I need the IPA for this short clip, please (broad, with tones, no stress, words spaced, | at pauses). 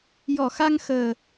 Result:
jɔ˨˩˨xa˧ŋ xəː˨˩